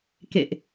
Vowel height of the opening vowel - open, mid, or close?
mid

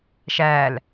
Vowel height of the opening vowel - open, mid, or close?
open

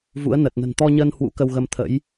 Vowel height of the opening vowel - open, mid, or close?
close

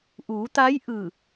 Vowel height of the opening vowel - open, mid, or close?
close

